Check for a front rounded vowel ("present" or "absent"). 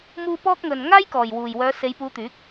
present